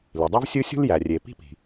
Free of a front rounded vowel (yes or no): no